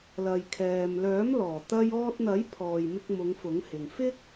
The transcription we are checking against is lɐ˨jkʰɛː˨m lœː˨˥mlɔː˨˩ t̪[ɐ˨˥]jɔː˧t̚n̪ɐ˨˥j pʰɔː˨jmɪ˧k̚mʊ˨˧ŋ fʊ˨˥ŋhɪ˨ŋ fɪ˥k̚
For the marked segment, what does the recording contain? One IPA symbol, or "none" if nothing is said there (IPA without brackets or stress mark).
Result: ɐ˧